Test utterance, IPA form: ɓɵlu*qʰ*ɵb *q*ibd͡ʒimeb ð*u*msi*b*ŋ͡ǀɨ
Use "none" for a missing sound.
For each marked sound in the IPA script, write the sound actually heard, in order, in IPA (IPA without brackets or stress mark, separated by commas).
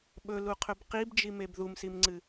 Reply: qʰ, q, u, m